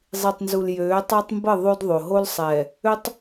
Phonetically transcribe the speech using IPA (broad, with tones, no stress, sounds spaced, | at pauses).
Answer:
zˤ i˨ tˤ n z u˨ l j øː˨˦ tˤ a˦ tˤ m b ə˦˨ ðˤ o˦ d ðˤ o˨ ɦ o˦ l sˤ ɛː˨ | ø˦ tˤ